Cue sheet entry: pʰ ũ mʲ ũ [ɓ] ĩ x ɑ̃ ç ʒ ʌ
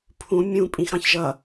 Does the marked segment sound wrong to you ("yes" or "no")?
yes